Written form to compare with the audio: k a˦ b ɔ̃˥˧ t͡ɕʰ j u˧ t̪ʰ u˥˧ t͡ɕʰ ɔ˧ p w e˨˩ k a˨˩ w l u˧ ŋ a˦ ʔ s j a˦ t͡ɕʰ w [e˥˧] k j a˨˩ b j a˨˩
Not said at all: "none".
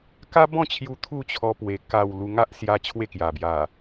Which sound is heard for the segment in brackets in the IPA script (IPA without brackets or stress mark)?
e˥˧